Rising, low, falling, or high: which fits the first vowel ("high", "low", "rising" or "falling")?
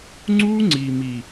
high